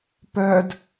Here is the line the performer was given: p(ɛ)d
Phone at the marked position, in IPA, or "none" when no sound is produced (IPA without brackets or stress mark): œ